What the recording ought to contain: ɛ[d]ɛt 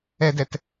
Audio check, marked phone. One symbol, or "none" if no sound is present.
d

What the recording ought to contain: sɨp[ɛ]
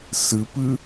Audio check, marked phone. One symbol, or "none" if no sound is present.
ɨ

